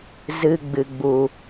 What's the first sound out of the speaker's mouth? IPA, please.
z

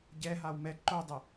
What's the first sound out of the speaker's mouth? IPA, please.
ɟ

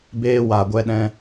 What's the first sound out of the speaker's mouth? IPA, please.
b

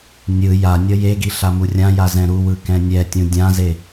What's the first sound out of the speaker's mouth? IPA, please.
nʲ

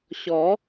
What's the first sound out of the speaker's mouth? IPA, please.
ɕ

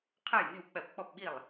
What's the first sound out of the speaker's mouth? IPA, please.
qʰ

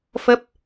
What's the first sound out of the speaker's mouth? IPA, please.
f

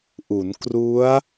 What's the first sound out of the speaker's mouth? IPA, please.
ʔ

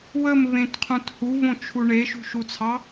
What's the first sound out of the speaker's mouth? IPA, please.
w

